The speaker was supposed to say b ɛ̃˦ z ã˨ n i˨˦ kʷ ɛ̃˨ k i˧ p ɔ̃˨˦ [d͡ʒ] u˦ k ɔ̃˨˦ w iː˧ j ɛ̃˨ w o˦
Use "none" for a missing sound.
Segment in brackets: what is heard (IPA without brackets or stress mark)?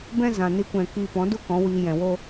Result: d